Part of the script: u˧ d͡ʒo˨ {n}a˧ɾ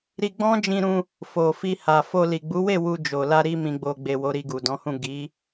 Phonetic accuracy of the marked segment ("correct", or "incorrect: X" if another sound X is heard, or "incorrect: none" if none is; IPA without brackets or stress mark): incorrect: l